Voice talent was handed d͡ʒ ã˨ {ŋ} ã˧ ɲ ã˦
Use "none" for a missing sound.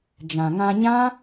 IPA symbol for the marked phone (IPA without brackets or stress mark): ŋ